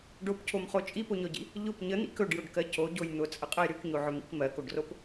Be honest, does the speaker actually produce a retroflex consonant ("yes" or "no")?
yes